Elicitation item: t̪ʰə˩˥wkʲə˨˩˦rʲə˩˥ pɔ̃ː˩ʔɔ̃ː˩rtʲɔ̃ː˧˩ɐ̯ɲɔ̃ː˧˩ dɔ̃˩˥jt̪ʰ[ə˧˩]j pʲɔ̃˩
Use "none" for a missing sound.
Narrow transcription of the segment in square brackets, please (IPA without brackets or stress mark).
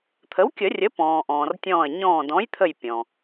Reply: ə˧˩